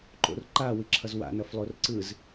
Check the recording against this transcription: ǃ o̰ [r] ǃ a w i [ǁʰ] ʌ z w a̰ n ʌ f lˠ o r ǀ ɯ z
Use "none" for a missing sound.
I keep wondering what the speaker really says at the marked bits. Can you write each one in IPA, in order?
r, ǁʰ

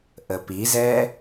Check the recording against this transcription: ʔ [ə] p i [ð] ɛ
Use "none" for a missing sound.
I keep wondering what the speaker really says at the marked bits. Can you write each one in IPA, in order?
ə, z

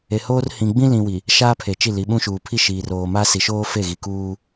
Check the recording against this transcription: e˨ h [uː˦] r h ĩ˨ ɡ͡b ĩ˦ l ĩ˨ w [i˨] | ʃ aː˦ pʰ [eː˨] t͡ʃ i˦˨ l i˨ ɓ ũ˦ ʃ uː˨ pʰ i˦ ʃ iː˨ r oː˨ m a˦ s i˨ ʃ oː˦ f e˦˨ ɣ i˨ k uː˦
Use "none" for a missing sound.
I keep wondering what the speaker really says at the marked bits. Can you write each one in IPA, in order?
oː˦, i˨, e˨

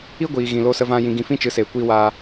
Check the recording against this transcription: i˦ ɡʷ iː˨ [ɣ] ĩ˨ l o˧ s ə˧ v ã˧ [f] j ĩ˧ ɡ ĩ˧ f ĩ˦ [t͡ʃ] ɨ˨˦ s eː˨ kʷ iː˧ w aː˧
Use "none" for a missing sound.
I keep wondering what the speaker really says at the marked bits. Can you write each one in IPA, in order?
ɣ, none, t͡ʃ

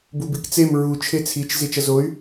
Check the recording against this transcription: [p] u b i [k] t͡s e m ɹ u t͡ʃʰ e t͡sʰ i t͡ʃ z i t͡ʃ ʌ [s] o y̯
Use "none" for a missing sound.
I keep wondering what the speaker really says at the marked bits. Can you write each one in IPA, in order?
b, k, z

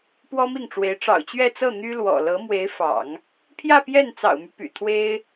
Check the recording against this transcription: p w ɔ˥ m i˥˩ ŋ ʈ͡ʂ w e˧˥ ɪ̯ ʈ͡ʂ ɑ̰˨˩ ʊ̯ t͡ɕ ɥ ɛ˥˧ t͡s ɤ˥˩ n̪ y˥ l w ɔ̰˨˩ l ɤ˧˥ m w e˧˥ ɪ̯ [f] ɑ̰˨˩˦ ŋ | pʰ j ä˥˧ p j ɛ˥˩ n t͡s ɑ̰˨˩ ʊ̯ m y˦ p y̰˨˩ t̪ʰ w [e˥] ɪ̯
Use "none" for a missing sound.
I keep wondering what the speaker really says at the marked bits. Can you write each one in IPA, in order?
f, e˥

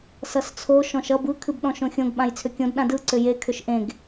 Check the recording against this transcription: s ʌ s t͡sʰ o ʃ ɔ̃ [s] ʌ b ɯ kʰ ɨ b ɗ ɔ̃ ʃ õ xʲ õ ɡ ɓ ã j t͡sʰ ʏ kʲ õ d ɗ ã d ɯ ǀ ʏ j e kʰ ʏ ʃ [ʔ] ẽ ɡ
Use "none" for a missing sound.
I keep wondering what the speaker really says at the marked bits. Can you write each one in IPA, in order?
ʃ, ʔ

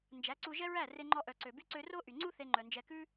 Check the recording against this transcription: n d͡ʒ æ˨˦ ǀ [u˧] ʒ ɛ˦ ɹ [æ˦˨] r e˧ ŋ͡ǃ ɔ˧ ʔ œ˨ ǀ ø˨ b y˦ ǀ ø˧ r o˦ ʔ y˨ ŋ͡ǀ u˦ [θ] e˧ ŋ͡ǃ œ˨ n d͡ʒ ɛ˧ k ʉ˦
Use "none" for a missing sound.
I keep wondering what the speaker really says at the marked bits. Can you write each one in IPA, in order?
u˧, æ˦˨, θ

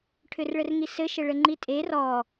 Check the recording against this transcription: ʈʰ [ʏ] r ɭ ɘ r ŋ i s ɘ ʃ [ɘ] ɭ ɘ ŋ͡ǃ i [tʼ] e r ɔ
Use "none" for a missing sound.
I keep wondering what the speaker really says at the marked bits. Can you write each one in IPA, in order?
ʏ, ɘ, tʼ

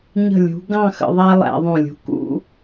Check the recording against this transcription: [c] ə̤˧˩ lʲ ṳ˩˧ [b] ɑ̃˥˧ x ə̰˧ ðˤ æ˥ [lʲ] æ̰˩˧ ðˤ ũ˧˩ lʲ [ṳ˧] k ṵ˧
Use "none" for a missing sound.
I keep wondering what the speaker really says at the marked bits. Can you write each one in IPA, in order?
ɲ, ɡ, lˠ, ṳ˧

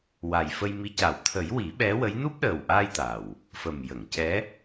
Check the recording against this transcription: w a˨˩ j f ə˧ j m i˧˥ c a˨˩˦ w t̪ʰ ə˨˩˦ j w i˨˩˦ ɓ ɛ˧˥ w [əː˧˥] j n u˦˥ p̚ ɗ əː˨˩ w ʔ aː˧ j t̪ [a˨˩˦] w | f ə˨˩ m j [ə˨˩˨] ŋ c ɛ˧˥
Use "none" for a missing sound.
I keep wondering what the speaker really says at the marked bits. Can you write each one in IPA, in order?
ə˧˥, a˨˩, ə˨˩˨

